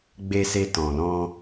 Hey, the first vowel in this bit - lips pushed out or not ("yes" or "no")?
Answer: no